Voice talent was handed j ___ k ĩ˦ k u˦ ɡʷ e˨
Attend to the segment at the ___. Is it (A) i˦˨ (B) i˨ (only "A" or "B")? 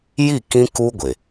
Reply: A